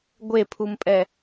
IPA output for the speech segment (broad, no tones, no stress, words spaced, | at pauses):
ɡʷepʰumpʼɛ